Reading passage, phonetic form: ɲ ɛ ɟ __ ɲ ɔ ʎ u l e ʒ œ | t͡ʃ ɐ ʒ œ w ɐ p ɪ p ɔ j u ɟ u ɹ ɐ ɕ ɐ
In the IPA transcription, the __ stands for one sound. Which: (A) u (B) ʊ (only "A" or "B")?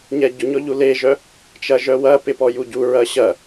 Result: B